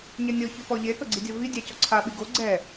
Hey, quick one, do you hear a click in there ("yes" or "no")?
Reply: yes